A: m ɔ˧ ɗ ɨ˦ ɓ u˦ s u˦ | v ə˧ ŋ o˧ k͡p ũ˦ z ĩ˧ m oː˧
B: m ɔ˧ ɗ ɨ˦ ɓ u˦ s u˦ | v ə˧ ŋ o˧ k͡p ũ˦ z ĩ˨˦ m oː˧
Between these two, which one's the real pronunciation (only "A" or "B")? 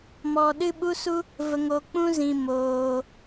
A